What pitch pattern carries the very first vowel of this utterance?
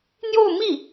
falling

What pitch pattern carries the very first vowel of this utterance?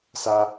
low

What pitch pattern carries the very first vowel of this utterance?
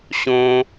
high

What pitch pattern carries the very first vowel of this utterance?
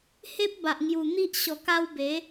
high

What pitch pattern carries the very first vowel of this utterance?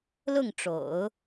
falling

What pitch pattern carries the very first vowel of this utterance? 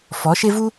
rising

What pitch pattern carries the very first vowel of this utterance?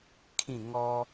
falling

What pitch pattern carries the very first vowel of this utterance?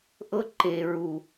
high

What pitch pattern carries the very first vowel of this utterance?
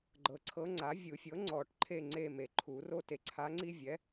low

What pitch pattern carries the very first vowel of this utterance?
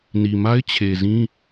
low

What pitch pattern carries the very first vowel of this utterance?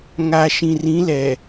low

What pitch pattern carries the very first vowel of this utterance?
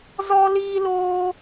high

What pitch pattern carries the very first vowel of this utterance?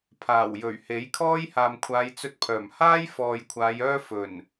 low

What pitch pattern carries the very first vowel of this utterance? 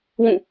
falling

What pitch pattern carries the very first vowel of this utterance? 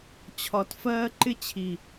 low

